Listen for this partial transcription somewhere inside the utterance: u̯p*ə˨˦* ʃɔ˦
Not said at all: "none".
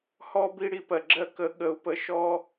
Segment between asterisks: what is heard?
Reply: ə˨˦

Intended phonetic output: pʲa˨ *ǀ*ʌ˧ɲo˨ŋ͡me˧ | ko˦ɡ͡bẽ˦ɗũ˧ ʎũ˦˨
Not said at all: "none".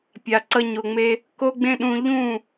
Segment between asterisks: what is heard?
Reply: ǀ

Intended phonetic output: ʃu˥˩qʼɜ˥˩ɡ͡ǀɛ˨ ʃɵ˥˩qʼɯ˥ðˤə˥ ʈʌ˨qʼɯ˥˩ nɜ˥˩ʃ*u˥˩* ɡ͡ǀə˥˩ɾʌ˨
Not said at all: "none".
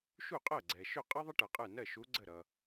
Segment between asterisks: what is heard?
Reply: u˧˥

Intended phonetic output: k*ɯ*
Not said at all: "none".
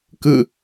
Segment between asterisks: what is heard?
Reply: ɯ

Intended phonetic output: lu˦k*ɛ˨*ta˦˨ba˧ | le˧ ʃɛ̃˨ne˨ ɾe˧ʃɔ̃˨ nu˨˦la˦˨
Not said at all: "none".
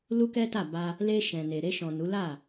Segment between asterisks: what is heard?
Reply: ɛ˦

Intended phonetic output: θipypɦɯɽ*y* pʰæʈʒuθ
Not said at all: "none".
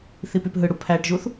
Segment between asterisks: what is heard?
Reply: u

